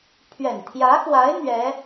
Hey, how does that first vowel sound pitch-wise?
low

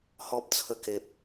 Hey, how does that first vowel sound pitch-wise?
high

